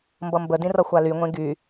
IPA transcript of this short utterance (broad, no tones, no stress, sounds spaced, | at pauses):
m b ʌ m b ə d ĩ r ʌ xʷ a l y ŋʷ ẽ ɡ y